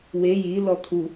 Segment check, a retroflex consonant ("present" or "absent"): absent